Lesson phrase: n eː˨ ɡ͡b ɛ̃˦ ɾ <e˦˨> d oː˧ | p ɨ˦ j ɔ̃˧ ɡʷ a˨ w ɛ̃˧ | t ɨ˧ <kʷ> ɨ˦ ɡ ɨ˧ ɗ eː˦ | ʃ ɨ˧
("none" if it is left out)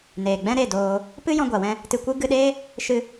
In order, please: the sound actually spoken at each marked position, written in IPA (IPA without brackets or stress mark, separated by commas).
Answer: e˦˨, kʷ